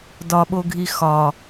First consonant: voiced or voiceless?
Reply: voiced